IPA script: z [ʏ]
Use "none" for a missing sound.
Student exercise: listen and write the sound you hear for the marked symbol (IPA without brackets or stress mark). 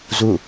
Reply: u